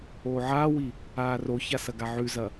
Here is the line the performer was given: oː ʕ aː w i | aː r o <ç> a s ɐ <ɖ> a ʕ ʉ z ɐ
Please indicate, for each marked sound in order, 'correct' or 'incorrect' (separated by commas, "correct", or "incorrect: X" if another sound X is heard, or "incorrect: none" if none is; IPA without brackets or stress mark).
correct, incorrect: ɡ